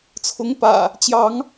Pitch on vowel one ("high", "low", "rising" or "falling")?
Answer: rising